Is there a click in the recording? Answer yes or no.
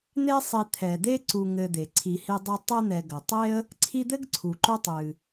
yes